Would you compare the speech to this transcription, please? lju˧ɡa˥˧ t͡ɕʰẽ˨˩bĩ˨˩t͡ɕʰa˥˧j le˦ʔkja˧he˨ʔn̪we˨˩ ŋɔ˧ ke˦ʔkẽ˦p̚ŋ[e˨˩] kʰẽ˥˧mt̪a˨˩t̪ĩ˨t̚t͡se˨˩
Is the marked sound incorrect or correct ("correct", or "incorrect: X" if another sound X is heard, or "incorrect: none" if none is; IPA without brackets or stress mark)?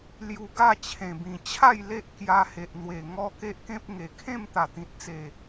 correct